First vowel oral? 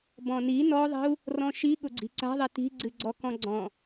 no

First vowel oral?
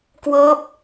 yes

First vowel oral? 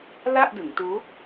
yes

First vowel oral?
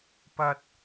yes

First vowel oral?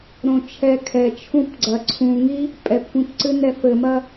no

